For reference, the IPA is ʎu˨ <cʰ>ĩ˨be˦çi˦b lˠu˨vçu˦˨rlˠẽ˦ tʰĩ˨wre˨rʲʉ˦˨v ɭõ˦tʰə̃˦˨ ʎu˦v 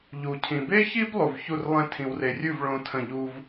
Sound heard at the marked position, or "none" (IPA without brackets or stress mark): cʰ